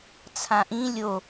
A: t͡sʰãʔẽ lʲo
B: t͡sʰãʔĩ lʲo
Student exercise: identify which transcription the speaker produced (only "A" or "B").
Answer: B